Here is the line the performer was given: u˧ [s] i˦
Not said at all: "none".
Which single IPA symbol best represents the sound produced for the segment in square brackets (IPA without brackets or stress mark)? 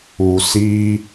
s